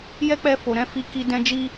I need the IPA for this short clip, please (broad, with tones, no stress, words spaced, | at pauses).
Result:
jɛ˦k͡pɛ˧ fo˨ɾɛ̃˨˦fi˧ki˧ dɛ̃˧d͡ʒi˧